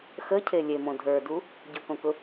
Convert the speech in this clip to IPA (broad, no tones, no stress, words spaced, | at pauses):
xəcʰe lʲemõ dʱə˞du | ɟʊkõkʊ